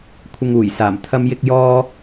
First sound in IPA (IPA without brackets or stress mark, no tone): kʷʰ